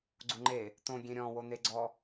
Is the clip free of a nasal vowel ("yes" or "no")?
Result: no